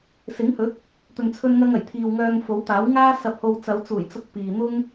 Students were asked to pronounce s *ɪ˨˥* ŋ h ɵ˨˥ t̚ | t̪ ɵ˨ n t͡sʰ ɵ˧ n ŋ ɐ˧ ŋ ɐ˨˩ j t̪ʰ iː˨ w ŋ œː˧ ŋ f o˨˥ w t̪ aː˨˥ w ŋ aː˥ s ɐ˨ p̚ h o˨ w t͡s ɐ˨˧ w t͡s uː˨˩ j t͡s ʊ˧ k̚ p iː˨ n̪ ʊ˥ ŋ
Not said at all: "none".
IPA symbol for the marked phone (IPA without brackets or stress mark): ɪ˨˥